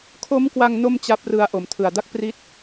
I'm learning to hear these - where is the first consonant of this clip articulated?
velum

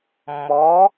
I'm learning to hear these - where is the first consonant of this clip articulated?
lips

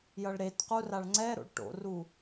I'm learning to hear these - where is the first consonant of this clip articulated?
palate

